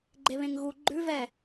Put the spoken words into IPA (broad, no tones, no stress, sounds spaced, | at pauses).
ɡ͡ǃ e β ẽ ŋ ɣ u ɡ͡ǃ ʉ v ɛ